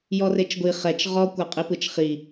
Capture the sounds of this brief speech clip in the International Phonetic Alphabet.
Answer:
j ɔ r e t͡ʃ ɡʷ i χ ɛ t͡ʃ ʁ ɔ kʷ a qʼ i p ɯ t͡ʃ χ i

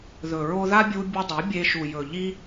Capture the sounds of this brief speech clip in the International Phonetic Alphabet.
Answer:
ð ɵ˨ ɹ o˦ ð a˦ bʲ u˧ bʲ ɵ˧ dˤ ɐ˨˦ bʲ e˧ ʃ u˨ j ɵ˨ ʎ i˦

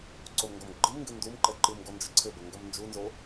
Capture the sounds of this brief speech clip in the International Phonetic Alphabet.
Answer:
ǀ o m ŋ ɡ ɔ m ɡ͡ǃ ɨ m ŋ ɡ ɨ n d u m ǃ ɛ ǃ ɨ m ɡ ɔ n d͡ʒ ɘ ǀʰ ɘ b ɐ ŋ ɡ ɐ m n d͡ʒ u n z o

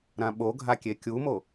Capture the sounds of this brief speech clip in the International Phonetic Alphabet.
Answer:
ɾ ã ɓ o ɡʱ a kʲ e kʲ u m o

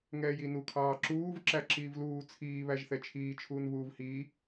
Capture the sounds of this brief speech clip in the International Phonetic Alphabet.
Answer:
ŋ ɛː j i n u kʰ ɑː ǁ uː v ǁ æ ǁ iː v l uː t͡sʰ iː β æ ʒ θ ɛ t͡ʃʰ iː t͡ʃʰ uː n β uː v h iː

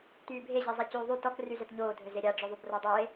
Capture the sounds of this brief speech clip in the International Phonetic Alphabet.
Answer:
t yː bʱ e ʑ e zˤ ɛ c yː ðˤ y t ɔ k r y z ɛ t ɲ oː dʱ ø z e ɾʲ a ɖ͡ʐ ø ðˤ y b r ɔ dˤ oː e̯

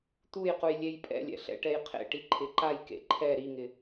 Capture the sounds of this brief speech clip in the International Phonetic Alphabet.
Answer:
t̪ u j q u j lʲ e j pʼ ɛ̰ lʲ ɛ̰ ɬ ɛ̰ ʈ ɛ j qʰ ḛ ʈ i ǃʰ ɪ ǃ a j k ḛ ǃʰ ɛ ɾ i ŋ ɪ

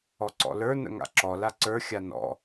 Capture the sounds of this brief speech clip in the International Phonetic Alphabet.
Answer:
ɔ ǀ ɔ̰ l ə˞ n ə̰ ŋ a̰ ǁ ɔ l a ǀ ə˞ xʲ a n ɔ̰

